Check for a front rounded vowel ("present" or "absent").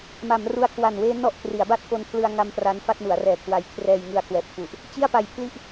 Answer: absent